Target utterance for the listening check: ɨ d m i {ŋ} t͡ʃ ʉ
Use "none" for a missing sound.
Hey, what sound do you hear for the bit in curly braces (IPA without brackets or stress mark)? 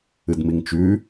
ŋ